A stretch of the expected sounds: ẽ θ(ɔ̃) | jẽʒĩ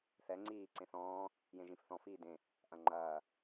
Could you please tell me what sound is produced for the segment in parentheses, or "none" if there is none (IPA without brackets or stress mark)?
ɔ̃ː